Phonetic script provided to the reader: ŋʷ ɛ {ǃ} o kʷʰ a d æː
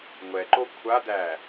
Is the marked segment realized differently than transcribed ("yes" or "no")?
no